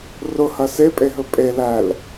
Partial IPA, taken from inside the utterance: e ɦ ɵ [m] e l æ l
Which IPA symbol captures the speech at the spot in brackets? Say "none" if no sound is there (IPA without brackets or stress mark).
pʼ